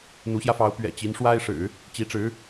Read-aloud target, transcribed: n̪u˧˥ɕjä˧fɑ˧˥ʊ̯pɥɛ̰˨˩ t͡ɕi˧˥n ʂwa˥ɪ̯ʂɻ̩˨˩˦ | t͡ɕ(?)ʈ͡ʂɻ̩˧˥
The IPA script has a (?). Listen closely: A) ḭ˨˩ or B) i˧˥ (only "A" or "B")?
B